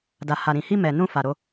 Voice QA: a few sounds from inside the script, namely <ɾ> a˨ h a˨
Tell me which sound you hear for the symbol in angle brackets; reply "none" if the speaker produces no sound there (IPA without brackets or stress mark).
d